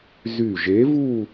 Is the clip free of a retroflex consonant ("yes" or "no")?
yes